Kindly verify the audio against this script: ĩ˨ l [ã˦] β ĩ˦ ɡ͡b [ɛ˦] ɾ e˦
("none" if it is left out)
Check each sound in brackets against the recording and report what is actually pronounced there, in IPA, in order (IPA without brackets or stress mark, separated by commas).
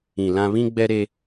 ã˦, ɛ˦